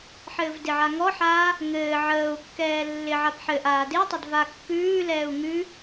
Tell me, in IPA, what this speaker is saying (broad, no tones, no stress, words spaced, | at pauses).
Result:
ħɘːvdɪʕa ŋɔħaː | ŋɘː ʕəːu̯kːɛː lːɪʕap ħɘʔ aːdɪtˤɪd vakːʉːlɛːu̯ ŋʉ